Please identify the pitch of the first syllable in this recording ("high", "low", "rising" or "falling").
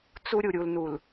high